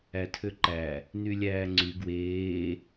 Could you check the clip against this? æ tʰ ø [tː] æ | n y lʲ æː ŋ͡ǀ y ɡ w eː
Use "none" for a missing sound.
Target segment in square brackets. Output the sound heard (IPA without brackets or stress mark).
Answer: ǃ